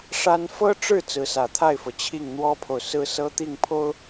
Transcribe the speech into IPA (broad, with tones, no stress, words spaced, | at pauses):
ʂa˥n fɤ˥ʈ͡ʂɻ̩˥˩ t͡sɹ̩˧˥sä˨˩ t̪ʰa˥˩ɪ̯fɤ˩ t͡ɕʰi˥˩ŋn̪wɔ˥pʰo˨ʊ̯ sɹ̩˥sɤ˥t̪i˥˩ŋpʰo˥ʊ̯